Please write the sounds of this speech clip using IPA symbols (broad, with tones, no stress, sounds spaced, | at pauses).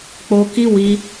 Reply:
k͡p o˧ k i˦ w i˧